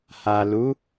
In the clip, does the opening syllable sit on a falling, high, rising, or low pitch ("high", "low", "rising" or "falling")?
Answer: low